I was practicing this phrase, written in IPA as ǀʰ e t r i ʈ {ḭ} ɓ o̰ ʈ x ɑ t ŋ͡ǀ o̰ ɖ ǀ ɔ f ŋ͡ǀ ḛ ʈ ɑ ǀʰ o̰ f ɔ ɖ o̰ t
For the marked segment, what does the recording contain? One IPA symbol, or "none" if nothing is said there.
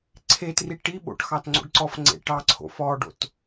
i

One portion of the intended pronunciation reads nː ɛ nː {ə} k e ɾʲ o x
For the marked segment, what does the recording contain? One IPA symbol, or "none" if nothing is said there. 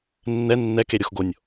ɛ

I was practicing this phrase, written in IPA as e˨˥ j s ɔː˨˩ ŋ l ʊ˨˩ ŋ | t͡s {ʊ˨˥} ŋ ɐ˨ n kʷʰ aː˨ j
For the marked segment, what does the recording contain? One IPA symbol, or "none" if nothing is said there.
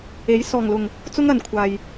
ʊ˥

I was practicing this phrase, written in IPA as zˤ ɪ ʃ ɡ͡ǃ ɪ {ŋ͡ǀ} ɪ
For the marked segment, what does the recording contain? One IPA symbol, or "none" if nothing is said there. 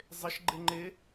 ŋ͡ǃ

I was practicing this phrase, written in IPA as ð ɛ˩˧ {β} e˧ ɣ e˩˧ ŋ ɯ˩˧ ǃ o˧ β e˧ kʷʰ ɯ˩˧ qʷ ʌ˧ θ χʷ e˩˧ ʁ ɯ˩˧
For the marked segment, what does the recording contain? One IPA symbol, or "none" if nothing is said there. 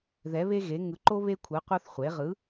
β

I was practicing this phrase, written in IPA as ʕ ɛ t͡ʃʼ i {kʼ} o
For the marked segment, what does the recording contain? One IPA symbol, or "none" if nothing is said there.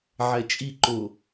ǃ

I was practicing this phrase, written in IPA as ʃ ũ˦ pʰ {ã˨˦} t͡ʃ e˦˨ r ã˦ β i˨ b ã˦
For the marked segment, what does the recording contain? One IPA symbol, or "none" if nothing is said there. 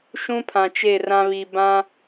ã˨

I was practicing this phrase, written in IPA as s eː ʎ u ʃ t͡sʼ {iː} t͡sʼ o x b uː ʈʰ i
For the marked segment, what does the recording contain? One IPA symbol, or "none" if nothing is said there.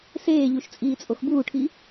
iː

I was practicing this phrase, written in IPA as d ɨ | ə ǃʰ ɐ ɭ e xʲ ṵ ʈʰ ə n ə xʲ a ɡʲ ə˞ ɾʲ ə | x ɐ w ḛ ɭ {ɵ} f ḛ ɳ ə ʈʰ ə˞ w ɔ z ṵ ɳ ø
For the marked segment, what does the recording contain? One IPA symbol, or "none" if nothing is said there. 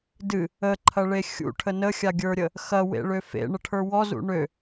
ø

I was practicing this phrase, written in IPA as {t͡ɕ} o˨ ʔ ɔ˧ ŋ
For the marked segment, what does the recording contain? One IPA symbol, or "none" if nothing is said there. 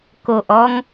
k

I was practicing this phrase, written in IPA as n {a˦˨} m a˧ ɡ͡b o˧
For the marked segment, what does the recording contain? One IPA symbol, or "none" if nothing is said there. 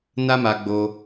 a˦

